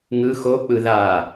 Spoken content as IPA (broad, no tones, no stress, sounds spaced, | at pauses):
ŋ ɯ x o k͡p ɯ ð a